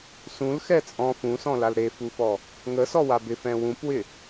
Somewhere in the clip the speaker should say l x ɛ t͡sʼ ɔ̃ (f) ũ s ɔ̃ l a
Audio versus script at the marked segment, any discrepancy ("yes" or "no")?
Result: no